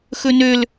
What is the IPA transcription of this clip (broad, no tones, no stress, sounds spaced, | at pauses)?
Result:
x ɵ n ø l